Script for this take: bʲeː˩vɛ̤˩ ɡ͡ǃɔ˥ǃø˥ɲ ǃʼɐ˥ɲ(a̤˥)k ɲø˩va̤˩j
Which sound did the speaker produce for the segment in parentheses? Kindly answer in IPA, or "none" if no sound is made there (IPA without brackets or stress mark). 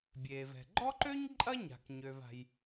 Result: a̤˩